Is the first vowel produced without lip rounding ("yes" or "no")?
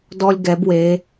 no